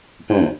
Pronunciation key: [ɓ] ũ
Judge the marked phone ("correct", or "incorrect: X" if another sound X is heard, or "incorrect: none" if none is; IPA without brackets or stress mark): incorrect: p